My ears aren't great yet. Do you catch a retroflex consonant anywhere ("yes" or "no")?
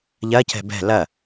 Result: no